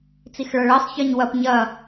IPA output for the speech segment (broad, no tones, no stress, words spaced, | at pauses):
t͡sixɭʌɭɜsˤ çɜɲwɐp ɲɐ